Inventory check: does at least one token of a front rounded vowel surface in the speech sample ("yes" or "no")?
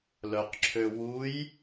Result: yes